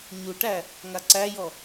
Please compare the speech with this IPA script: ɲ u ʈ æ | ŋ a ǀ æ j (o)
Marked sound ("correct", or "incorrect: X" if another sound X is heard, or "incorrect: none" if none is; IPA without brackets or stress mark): incorrect: ɔ